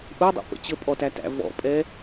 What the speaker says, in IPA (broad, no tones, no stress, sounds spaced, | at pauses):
ʔ u dˤ ṵ p ə̰ t͡ɕ ə pʼ ɔ t æ t æ̰ v ɔ̰ pʼ ɛ